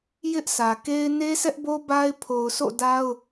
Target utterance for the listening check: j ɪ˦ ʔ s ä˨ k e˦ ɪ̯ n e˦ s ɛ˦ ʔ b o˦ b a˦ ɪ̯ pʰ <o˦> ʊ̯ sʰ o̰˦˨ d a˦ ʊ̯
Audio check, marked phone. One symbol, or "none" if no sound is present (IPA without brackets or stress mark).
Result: o˨